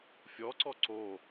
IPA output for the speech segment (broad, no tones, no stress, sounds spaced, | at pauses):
fʲ ɔ ǀ ɔ ǀ o